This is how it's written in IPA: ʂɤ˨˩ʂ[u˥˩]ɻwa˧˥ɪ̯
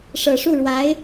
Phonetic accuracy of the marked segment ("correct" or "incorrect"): correct